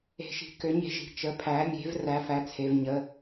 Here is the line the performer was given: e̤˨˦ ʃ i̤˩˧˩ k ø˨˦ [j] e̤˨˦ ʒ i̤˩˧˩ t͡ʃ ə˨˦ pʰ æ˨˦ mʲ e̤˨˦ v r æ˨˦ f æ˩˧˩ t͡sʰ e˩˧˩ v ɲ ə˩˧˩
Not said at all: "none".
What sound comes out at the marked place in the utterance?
ɲ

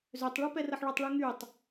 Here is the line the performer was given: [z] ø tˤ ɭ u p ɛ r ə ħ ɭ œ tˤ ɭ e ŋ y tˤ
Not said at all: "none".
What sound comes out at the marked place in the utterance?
z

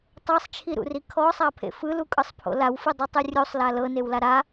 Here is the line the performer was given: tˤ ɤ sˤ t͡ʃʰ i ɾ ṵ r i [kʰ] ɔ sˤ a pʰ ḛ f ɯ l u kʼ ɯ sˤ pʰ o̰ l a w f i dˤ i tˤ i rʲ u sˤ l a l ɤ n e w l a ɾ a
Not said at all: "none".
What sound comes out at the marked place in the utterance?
kʰ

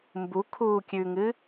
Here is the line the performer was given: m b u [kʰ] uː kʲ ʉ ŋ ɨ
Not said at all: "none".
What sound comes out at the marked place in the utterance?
kʰ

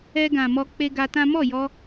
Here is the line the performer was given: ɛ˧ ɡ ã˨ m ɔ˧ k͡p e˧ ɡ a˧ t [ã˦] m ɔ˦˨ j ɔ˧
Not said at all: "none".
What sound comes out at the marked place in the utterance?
ã˦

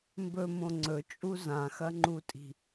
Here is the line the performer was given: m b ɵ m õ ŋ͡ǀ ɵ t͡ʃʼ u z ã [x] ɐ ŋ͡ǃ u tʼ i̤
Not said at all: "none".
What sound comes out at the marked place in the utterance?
x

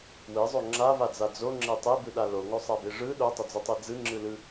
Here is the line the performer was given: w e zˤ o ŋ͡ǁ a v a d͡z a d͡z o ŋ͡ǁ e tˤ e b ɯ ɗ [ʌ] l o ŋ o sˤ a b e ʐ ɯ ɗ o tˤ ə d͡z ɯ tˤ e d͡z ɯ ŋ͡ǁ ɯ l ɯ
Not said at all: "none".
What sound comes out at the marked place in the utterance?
a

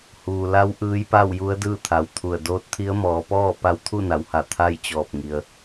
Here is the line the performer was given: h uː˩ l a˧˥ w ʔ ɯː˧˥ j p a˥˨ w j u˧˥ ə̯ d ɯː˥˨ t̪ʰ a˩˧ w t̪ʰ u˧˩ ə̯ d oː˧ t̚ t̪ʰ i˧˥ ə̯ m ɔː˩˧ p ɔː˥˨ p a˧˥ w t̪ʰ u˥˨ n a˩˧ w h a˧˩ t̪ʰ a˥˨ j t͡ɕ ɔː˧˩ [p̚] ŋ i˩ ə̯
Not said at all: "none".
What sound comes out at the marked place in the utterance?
p̚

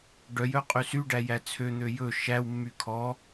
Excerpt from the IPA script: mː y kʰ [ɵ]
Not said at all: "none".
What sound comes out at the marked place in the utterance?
ɔ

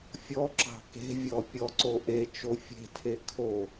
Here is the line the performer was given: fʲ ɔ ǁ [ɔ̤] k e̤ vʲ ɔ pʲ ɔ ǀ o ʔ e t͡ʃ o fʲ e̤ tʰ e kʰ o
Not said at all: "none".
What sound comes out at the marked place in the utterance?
ɑ̤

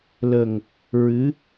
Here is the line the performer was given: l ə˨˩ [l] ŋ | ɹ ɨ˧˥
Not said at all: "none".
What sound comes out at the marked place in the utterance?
none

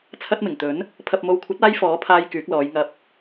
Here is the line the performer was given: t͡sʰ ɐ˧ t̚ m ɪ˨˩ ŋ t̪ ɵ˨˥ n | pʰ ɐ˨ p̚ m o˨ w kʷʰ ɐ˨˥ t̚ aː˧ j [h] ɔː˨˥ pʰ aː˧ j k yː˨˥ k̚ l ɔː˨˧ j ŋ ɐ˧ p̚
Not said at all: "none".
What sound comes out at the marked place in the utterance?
f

